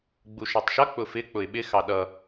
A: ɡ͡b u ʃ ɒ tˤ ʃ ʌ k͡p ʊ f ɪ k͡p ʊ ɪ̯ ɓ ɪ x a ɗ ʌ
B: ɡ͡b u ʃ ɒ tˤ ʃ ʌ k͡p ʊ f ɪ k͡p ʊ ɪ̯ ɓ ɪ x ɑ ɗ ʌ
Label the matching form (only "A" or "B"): B